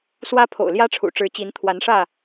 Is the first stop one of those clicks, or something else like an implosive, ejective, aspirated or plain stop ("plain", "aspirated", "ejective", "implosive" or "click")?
aspirated